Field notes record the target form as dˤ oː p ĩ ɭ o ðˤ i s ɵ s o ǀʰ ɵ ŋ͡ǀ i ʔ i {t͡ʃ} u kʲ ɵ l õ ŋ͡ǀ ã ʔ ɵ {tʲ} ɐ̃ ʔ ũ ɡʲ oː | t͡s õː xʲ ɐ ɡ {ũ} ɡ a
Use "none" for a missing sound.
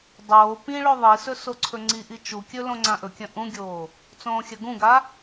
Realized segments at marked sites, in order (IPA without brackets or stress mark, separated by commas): t͡ʃ, kʲ, ũ